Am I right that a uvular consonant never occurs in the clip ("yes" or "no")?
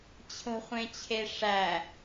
no